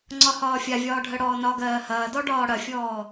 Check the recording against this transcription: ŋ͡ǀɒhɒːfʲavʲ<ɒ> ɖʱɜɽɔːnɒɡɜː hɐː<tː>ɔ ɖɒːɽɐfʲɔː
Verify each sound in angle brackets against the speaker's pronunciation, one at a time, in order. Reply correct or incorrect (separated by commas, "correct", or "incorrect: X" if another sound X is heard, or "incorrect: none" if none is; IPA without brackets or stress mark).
incorrect: ɒː, incorrect: d